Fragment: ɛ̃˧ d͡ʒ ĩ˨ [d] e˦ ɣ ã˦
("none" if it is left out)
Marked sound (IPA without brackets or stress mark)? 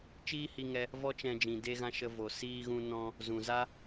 d